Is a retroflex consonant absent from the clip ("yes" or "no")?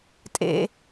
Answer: yes